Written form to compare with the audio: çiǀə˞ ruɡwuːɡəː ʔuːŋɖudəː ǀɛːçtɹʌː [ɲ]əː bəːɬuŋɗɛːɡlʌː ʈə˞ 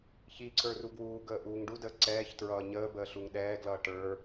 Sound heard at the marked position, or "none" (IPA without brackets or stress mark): ɲ